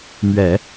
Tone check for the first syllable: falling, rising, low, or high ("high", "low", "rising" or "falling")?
low